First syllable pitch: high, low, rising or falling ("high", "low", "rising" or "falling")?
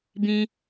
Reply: high